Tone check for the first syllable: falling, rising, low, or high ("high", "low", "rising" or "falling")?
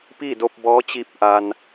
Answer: falling